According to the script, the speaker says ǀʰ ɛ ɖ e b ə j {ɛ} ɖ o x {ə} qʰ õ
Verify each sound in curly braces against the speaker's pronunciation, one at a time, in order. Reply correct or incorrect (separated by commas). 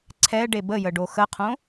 incorrect, correct